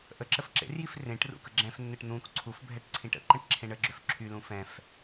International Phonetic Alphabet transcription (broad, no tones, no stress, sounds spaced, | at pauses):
ʔ ə ǁ ə f ǁ ḛ r j i f r ẽ ʈ r ṵ k ə ɡ͡ǁ ɛ̃ f nː ɘ ʈ n̪ ũ k ǀʰ u f bʱ ɛ ʈ ǀʰ ĩ ʈ ə̰ ǃ ə̃ ʈ ǁʰ ẽ ɳ ə ɡ͡ǁ ø f ǁʰ y l ũ f ɛ̃ f